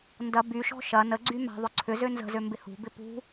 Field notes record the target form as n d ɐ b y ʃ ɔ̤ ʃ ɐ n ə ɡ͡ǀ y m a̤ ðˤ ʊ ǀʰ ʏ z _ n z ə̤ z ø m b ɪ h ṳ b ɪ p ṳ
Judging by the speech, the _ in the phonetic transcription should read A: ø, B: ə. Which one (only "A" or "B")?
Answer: A